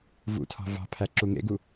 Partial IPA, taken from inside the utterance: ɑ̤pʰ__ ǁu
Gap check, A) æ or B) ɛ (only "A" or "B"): A